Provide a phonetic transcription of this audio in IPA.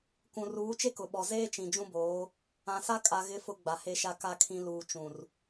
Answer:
kũ˨ruː˨˦ t͡ʃe˦kʊ˨ɓɔ˨ zeː˦t͡ʃĩ˨ d͡ʒũ˦boː˨˦ | ã˨sa˦kʼa˨ɣɪ˨˦ fʊ˦ɡ͡ba˨ he˨ʃa˨ ka˨kʰĩ˨ luː˨t͡ʃũ˨r

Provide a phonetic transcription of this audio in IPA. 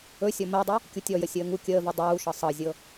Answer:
ɵ sʲɔmɜdˤy | kʲutʲɔjə sʲəːŋu kʲəːvy dˤuːʃɤ sˤɤzʲɤ

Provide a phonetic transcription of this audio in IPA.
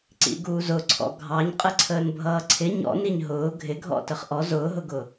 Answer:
ǀḭɡuːzʊǀʰɔ̰ ɡʱɑɲqʼəǀʰəːn bʱʌːǀʰɪ ɲɔ̰niɲ ɦʊː ɡʱɪɡʱɔ̰ təχʔɔ zʊːɦʊɡʊ

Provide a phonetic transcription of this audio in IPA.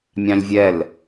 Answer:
mʲɑ̃lʲvʲɛl

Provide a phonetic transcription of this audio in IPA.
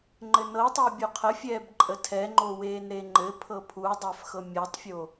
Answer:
ŋ͡ǃɘnɤtˤəu̯ bʲuqʰəfʲɛːb ǃʼətʰɛŋ͡ǃo weːnɾeŋ͡ǃɘpʰɤ pʰudˤæf xɤmʲɤtˤfʲo

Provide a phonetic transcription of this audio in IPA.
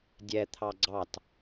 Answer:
dʲɛ t̪ʰɑɡ͡ǀɑt

